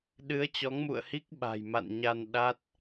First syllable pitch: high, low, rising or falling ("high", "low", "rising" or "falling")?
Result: rising